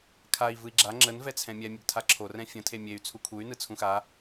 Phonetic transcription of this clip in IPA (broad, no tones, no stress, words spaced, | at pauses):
kʰai̯ vɯi̯ɡ͡ǁa ŋ͡ǁən vɛt͡sʰɛ̃mʲɛ mʲəɡtʰaǁʰo rɛ̃fʲə̃ tʰemʲey̯ t͡sʰukʰuy̯ nɯt͡sʰũxa